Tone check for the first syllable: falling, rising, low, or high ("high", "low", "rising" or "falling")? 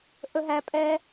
high